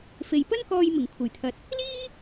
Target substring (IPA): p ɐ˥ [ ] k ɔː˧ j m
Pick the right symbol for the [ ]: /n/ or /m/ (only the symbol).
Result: n